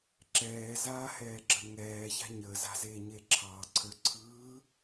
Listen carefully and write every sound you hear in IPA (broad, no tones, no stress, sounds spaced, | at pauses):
ǁ ɛː z aː h ɛː ɡ͡ǁ ə ŋ ɛː ç a̤ ɲ əː z a̤ z eː ɲ eː ǁʰ ɑː ǀʰ ə˞ ǀʰ ɯː